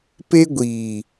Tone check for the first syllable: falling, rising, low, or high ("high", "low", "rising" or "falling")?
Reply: high